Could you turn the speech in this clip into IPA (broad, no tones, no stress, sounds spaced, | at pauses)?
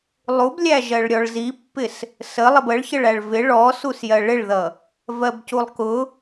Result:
lˠ u b lʲ æ ʒ ɜ ɭ ɾʲ ɔ ɭ z i pː ɪ s | s ə lˠ ɪ b ə ɭ ç ə ɭ æ ɭ v ɪ ɭ ɔ s u s j ɜ ɭ ɪ ɭ ð ʌ | v ɜ b c u lˠ k ʊ